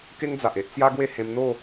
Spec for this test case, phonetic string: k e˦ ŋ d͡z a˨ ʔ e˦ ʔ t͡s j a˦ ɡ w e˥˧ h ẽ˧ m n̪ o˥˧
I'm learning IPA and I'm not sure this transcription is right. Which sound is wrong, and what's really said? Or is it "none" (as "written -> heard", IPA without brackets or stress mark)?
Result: none